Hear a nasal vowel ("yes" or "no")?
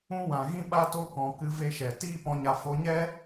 yes